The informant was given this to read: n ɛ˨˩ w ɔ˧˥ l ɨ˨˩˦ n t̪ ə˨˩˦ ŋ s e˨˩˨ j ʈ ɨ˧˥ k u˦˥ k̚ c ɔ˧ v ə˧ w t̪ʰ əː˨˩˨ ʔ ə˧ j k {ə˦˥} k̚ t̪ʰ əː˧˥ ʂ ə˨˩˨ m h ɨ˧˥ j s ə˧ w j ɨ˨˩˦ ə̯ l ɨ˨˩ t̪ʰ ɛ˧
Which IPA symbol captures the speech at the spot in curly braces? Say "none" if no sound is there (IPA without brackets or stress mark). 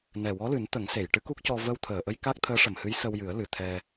a˦˥